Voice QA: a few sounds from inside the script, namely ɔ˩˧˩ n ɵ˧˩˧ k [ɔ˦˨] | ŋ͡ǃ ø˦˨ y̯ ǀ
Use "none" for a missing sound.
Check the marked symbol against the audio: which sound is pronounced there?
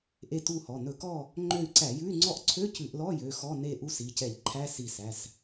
ɔ˦˨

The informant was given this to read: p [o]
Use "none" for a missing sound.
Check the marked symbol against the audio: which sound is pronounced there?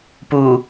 u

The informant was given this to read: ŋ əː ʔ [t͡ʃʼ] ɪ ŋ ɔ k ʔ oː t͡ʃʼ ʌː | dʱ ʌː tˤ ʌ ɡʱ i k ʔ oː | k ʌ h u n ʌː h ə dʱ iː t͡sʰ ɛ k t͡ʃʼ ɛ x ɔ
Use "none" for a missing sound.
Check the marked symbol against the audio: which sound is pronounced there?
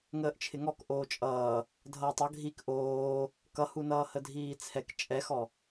t͡ʃʰ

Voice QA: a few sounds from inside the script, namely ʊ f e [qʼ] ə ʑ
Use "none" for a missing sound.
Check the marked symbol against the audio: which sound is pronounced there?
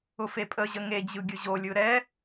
pʼ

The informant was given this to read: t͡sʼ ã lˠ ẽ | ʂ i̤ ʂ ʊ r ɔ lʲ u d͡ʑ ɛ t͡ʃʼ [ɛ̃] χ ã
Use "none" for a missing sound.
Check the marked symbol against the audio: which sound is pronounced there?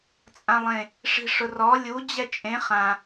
ẽ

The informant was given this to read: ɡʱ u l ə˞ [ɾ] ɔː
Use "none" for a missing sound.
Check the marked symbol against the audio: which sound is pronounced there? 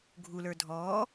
dʱ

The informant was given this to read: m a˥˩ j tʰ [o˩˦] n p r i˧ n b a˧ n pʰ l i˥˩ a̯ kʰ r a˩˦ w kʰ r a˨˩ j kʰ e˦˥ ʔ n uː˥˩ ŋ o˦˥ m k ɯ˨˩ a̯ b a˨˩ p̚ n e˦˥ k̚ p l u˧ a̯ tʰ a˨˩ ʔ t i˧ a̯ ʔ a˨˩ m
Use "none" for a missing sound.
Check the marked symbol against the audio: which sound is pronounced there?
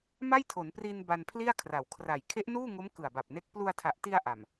o˩˦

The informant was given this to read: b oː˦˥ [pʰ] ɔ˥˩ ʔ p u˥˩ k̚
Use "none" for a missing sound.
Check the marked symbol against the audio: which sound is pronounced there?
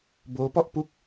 p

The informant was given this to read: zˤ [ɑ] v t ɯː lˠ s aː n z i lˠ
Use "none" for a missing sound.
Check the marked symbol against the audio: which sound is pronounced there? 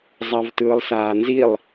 ɑ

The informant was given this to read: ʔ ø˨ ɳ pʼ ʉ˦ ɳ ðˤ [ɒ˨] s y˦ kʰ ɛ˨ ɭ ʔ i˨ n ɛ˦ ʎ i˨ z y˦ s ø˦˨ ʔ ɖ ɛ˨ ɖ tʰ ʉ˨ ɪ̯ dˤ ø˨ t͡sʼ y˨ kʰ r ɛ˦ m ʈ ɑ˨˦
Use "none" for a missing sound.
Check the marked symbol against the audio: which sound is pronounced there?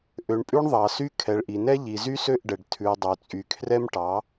ɑ˨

